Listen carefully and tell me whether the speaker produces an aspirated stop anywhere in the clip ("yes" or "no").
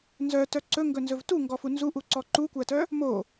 no